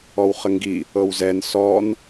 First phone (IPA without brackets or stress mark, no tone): ɔ